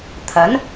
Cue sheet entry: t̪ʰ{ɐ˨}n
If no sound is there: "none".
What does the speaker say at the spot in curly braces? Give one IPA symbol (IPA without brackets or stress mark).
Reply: ɐ˨˥